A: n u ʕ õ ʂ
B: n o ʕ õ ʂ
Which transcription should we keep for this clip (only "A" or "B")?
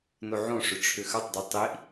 B